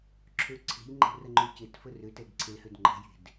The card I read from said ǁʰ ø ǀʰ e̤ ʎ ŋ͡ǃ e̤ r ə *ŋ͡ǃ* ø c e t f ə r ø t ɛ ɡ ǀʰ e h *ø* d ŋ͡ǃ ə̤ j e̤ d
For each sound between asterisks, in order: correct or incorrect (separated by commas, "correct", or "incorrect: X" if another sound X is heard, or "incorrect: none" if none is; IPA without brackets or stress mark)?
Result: correct, correct